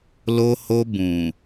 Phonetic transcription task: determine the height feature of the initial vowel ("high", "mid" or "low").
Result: mid